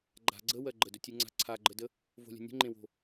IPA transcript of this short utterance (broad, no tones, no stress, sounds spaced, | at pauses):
ɡ͡ǃ a̤ ɡ͡ǀ ə w ɜ ɡ͡ǃ ə d ɵ tʲ ʉ ŋ͡ǀ a̤ ǀʰ a ɡ͡ǃ ə d ə | v o̤ lʲ ə̤ nʲ ə̤ ŋ͡ǃ ẽ w o̤